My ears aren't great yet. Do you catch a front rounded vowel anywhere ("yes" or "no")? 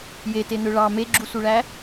yes